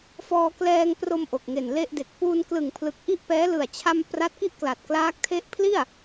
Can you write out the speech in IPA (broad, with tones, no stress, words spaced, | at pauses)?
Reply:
fɔː˧klɛː˧ŋpro˧m ʔo˨˩k̚ŋe˨˩nle˥˩ʔde˨˩k̚ puː˧nklɯ˨˩ŋpʰlɯ˨˩k̚ ʔi˥˩ʔpɛː˦˥ lɯ˨˩a̯t͡ɕʰa˧m pra˦˥t̚ ki˥˩ʔkla˨˩t̚klaː˦˥k̚ tʰe˦˥ʔpʰli˥˩a̯